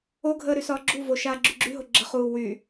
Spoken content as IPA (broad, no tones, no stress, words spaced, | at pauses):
oɡʱəː ɾysɒːɡ͡ǁuvo ʃaːɡ͡ǁyɡ͡ǁyɦo ɡ͡ǁəχuː wyː